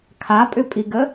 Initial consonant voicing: voiceless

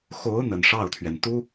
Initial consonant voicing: voiceless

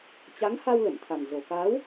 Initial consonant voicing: voiceless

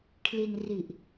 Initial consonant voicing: voiceless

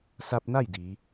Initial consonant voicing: voiceless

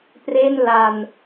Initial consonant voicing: voiceless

